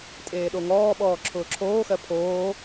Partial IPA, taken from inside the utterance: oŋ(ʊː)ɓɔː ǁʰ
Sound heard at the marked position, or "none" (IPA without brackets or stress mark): ɔː